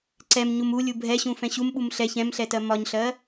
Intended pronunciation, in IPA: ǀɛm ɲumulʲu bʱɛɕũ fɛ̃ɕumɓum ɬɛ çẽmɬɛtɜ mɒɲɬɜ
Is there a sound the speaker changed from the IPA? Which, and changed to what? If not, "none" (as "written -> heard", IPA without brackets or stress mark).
ẽ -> ɛ̃